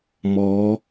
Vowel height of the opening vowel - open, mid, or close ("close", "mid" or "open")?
mid